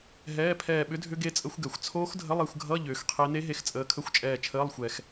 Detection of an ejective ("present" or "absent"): present